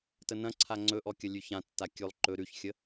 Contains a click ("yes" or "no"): yes